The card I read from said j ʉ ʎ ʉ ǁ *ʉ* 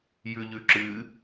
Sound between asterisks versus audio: incorrect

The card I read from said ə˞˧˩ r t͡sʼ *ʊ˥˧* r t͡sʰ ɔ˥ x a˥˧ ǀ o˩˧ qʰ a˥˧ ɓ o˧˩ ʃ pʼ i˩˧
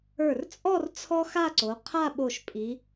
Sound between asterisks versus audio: incorrect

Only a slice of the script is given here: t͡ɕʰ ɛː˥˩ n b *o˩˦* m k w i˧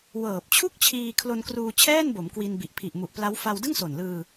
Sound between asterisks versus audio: correct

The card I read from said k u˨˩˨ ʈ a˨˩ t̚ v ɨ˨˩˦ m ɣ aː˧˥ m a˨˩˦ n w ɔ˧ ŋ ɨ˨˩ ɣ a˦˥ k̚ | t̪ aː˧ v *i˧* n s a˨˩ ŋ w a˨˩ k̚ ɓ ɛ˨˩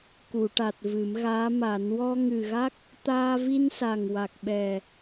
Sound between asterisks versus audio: correct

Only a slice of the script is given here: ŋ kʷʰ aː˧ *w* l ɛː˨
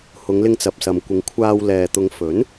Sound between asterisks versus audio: correct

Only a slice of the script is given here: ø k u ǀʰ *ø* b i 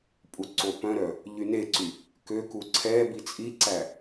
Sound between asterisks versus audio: incorrect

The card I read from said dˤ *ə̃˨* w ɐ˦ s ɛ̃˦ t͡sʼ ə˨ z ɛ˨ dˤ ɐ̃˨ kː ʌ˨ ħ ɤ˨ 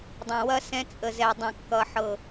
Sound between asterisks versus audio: correct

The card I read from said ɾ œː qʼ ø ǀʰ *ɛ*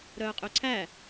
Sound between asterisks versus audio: incorrect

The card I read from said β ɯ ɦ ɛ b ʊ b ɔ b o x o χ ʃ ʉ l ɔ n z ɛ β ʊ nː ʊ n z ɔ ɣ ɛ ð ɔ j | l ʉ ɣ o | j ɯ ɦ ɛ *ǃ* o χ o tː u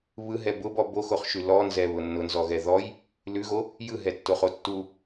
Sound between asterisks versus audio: incorrect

